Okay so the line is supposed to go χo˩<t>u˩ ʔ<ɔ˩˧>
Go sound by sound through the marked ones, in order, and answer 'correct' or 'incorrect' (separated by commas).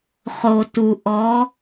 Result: correct, correct